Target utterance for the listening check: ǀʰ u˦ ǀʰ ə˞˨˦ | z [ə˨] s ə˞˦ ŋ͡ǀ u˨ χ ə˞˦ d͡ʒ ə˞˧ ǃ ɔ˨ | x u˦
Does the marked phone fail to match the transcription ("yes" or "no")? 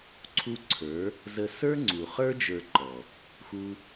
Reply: yes